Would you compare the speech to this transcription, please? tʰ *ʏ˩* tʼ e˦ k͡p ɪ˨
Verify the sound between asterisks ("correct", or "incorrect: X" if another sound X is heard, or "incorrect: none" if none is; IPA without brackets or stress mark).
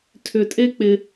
correct